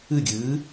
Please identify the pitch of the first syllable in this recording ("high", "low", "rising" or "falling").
falling